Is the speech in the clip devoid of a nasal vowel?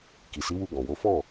no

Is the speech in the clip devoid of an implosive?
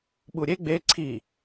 no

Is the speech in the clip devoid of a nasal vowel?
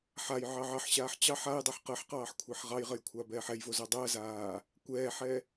yes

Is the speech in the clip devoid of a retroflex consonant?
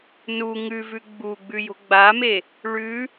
no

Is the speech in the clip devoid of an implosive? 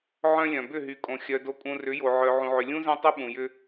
no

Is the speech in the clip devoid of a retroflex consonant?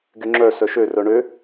no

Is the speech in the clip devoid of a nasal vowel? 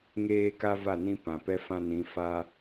no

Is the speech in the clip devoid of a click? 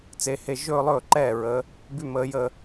no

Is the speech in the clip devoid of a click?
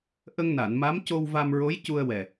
yes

